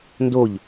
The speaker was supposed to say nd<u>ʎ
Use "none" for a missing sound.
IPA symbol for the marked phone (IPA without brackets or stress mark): o